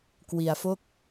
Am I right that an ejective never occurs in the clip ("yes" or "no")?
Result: yes